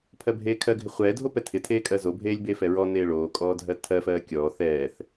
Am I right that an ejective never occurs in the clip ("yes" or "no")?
no